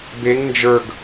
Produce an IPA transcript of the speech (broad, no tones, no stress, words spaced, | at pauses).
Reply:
beŋ nd͡ʒə˞ɡ